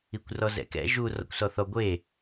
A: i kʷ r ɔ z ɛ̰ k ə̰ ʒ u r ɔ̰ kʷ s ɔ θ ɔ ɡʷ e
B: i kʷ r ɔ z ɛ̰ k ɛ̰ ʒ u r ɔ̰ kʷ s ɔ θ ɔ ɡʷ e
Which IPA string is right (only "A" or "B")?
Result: B